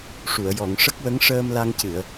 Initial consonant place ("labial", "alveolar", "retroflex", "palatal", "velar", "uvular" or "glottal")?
retroflex